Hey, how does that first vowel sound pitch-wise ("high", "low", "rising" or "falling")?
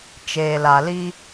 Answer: low